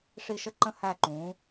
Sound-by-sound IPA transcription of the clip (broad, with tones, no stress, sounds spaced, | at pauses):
ʂ i˧˩ ʃ ə˧ ǃ ə̃˧ h æ˧˩ ǃ ũː˩˧